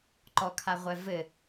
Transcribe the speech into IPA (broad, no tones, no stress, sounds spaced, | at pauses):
ǃ ɔ kʰ a ʁʷ ɛ v ɘ